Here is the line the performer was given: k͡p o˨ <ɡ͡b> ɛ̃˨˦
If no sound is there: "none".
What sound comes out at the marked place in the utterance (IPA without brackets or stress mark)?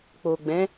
ɡ͡b